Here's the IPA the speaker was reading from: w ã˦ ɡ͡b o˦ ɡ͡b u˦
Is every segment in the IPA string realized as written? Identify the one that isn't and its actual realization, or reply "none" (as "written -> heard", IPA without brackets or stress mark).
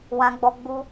o˦ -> ɔ˦